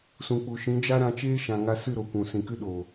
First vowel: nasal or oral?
nasal